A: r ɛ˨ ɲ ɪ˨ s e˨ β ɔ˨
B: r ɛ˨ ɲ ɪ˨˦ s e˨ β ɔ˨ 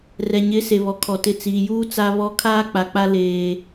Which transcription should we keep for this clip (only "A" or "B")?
B